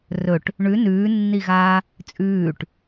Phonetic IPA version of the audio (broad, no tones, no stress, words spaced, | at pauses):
rɵʈ | ɳʉ nʉːnːiɣaː | t͡sʼʉːʈ